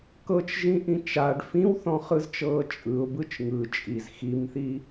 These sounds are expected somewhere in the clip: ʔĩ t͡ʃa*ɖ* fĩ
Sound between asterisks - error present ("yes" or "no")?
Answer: no